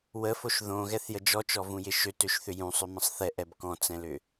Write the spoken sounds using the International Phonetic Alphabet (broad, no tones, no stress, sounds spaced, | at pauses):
w ə f o ʃ ð õ ɣ ɛ θ j ə d͡ʒ ɔ t͡ʃ ɔ v ũ j ɪ ʃ ø t ø ʃ θ ʏ j ũ sˤ ʏ m ə̃ sˤ θ ɛ ʔ ɛ b k ɔ̃ t͡s ɛ̃ l ʏ